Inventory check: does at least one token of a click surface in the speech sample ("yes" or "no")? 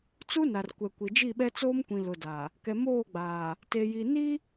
no